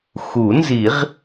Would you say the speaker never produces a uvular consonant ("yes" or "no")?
no